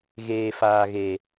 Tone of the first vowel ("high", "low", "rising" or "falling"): low